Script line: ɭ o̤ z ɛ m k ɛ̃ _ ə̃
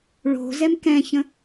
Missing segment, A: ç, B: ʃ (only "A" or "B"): A